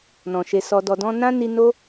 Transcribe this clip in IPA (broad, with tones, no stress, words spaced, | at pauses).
nɔ̃˨ʃe˧sɔ˧ dɔ˨dɔ̃˧ nã˦ni˧no˦